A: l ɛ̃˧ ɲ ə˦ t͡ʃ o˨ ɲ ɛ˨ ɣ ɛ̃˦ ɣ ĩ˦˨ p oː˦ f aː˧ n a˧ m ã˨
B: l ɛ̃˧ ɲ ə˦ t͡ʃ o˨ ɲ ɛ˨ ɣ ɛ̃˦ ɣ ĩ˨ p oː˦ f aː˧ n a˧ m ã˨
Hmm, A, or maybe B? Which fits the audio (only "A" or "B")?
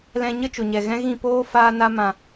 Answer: A